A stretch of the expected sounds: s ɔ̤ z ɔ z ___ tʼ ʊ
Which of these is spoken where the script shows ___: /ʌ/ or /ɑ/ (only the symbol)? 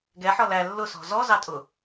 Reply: ɑ